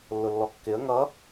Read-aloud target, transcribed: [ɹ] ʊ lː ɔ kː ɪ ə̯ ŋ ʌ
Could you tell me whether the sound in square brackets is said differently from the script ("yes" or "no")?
yes